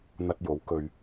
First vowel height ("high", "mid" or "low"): low